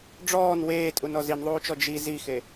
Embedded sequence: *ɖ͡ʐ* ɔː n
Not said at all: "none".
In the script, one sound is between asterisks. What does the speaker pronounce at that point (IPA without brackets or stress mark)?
ɖ͡ʐ